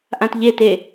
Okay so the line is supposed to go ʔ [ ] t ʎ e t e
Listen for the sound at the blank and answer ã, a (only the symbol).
ã